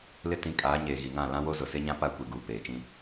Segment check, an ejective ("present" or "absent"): present